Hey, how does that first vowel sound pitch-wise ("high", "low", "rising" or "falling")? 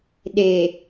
low